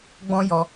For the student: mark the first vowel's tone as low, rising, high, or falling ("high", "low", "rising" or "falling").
high